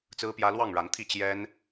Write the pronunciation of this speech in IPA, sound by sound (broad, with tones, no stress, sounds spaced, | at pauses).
t͡s ɹ̩˦ p j ä˦ l w ɑ˥˨ ŋ ɻ a˨˦ n t̪ʰ i˥˨ t͡ɕ j ɛ˦ n